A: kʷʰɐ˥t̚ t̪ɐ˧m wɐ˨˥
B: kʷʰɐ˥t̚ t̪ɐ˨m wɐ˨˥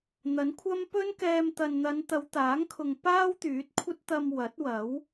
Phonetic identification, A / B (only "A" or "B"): A